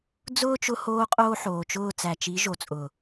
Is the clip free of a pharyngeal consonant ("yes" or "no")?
no